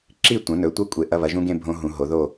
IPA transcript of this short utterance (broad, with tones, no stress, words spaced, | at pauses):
ǁi˥˨tʷɐ̃˩˥ nɵ˩˥tʷɐ˧˥˧kʷʼe˨˩ ʔɐ˧˥˧βɐ˩˥ʒũ˦˥ɡẽ˥˨ bʱõ˦˥ɦũ˨˩˦ɦo˩˥ ðo˥˨